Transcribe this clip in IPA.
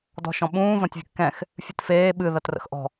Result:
d ɔ̤ ʃ ɔ̃ ɓ ũː v ɐ̃ tʲ vʲ ə̤ kː ɛ̃ x | fʲ ɨ t f eː ɓ ɨ ð ɐ t r ə̰ x ʔ ɔ̤

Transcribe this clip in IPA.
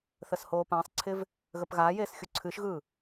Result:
θ ə s h oː p ã sˤ ǀʰ ɪ v | ɣ ə p ɣ a j eː s xʲ u ǀʰ ɨ ʃ ɣ ɯ

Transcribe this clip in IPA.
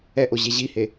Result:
ɛ ʔ o ʑ e ʑ i h e

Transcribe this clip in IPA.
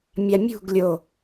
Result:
mʲ a mʲ ṳ ɡ lʲ o

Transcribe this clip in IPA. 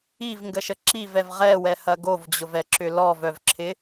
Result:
i v ŋ ɡ ə ʃ ə ǁ i v ɛ v ʁ ɛ w ɛ h ɐ ɡ o v d͡ʑ ʊ v ɛ ǁ ʏ l ɔ v œ v ǁʰ ɪ

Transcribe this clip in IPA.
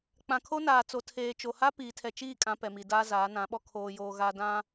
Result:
k͡p ã˨ kʰ o˦ n aː˨ t͡s o˨ tʰ eː˨ t͡ʃ o˨ h a˦ p iː˨ tʰ ɛ˨ t͡ʃ iː˦˨ kʼ ã˦ p ɛ˨ m i˨ d aː˦ z aː˨˦ n ã˨˦ ɓ ɔ˦ kʰ oː˨ j oː˨ ɣ a˨ d ã˦

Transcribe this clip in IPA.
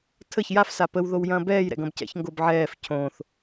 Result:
tʰ ə ç j a f s a p ə w ð o w j ɐ̃ː b ɛː j ɾ ɛ̰ ɡ ɐ̃ b c ɛ̰ ç ŋ ɡ o b ʕ ɛː f cʰ õ θ

